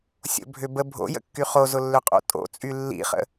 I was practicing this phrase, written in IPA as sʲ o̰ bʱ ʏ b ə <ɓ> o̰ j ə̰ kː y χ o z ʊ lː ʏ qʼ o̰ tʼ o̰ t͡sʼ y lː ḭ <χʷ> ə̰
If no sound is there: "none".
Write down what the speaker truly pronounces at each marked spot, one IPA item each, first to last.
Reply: bʱ, χ

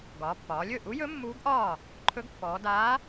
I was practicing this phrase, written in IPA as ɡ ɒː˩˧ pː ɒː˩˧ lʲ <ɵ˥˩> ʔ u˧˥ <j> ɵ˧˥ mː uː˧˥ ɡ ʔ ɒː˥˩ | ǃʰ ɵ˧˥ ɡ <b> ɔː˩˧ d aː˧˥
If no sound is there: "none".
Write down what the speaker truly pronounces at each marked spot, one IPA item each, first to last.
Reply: ɵ˥˩, j, pː

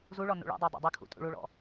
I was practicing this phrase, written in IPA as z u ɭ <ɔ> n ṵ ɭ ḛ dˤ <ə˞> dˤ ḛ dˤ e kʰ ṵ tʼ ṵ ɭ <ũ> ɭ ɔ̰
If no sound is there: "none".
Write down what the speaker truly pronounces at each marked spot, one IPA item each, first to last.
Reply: ɔ, ə˞, u

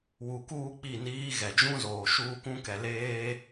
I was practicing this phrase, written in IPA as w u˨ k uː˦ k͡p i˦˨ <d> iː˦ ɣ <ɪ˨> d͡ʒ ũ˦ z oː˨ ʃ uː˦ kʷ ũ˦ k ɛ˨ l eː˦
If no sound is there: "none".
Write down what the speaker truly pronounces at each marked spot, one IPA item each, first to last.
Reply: n, ɛ˨

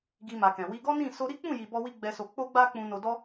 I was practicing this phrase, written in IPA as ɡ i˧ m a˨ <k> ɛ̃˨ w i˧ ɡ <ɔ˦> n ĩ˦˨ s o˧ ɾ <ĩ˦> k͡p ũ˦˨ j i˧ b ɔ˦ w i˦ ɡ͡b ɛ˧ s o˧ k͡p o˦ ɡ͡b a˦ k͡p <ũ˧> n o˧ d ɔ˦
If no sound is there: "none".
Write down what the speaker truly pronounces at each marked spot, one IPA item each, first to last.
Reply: k, ɔ˦, i˦, ũ˧

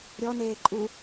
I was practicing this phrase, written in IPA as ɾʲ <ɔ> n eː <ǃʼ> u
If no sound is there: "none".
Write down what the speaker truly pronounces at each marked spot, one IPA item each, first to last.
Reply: ɔ, ǃʼ

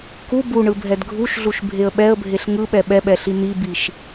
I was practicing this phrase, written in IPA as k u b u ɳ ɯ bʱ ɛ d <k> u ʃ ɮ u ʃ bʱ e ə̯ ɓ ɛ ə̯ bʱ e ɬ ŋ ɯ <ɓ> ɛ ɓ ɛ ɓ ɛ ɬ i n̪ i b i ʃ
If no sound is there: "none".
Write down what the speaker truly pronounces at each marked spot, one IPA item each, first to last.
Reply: ɡʱ, ɓ

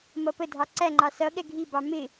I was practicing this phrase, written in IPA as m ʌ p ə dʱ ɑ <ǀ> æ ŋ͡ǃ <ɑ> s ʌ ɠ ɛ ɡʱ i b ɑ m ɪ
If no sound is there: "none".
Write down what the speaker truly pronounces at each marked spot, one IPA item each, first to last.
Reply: ǀ, ɑ

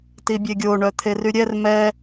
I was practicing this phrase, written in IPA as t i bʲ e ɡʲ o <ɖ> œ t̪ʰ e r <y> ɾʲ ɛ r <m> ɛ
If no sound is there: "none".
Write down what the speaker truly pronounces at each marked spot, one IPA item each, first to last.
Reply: ɳ, y, m

